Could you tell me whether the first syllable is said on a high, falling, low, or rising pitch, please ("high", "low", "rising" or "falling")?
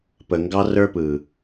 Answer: low